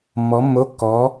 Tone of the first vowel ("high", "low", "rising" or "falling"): rising